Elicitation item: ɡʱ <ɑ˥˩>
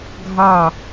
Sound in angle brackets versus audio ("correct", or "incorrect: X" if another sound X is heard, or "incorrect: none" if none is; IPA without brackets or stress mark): correct